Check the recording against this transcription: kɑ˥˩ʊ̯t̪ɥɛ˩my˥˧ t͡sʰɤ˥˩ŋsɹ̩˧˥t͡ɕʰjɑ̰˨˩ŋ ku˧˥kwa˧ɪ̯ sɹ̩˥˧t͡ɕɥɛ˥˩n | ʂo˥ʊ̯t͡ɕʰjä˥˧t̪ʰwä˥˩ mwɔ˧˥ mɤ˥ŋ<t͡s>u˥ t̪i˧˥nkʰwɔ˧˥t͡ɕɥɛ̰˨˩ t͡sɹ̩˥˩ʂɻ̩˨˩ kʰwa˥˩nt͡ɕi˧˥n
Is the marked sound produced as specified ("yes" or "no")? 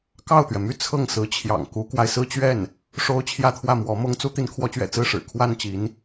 yes